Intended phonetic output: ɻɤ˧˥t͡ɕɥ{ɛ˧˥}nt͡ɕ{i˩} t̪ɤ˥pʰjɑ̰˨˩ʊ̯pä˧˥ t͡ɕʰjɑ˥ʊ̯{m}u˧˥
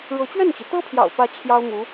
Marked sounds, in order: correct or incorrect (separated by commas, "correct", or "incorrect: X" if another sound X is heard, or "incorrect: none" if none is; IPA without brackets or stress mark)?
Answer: incorrect: ɛ˥˩, correct, correct